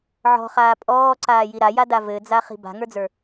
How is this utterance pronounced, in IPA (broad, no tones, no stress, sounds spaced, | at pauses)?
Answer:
ʕ ɔ̤ χ aː pʼ ɔː ǀ aː j i ɾ a j a d a v ɘ d͡z a χ i̤ b a̤ ŋ ə˞ d͡z ə˞